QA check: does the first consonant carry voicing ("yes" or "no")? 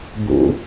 yes